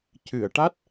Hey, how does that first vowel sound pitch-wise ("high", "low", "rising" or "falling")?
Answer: low